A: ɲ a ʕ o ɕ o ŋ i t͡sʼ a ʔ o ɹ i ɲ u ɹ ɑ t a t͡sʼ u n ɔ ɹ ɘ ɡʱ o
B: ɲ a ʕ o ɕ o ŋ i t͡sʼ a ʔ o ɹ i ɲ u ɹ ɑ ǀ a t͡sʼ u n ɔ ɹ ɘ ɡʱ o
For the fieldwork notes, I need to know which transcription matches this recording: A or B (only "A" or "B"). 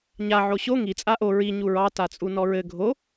A